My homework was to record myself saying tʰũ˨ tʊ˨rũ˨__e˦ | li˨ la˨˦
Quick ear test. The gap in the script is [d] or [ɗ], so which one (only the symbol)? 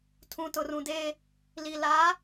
d